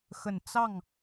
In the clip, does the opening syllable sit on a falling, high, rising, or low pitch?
low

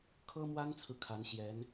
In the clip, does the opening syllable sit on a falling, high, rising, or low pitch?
high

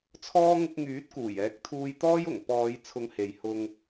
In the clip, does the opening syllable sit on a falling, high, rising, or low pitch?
high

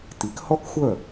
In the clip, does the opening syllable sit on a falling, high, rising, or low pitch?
rising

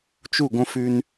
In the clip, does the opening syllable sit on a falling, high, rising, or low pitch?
falling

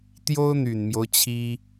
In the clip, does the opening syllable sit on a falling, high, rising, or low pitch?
high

